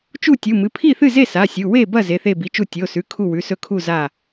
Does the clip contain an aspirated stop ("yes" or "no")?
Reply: yes